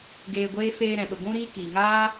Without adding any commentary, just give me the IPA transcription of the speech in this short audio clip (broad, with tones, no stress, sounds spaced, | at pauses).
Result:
ɡ eː˧ ɡʷ eː˦ f eː˧ ɾ ɛ̃˨ ɓ ə˨ ɡʷ ũ˦ ɾ iː˦ k iː˨ ŋ aː˦